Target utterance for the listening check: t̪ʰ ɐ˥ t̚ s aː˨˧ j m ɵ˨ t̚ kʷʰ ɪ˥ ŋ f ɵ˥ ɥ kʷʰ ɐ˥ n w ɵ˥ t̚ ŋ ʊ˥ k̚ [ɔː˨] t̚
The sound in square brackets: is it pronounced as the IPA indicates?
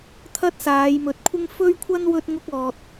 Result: yes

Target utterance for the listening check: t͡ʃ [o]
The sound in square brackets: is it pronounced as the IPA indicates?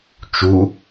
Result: no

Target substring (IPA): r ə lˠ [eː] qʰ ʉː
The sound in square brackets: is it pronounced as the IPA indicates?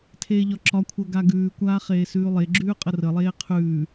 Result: yes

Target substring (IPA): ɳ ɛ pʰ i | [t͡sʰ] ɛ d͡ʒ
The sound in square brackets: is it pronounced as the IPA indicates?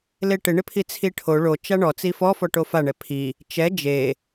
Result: no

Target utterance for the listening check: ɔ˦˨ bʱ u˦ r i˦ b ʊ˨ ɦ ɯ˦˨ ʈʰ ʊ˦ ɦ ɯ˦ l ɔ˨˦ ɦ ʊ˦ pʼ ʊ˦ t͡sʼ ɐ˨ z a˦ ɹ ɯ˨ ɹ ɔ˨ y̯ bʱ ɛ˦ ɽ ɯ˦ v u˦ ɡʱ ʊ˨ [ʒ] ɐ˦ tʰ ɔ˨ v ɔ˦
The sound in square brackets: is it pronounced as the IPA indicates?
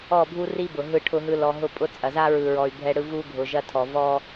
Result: yes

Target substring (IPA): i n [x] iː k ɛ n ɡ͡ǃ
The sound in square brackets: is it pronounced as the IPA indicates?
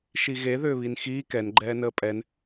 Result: yes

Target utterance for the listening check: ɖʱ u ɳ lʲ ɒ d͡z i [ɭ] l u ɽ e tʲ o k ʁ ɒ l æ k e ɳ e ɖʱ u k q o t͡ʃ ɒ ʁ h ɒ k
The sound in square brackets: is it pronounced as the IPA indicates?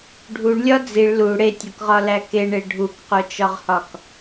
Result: yes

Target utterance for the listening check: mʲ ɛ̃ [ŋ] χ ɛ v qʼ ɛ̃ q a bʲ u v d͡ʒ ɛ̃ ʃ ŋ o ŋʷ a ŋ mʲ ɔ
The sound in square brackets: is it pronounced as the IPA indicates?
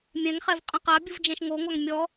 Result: yes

